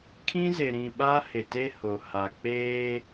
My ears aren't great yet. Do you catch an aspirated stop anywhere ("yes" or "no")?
yes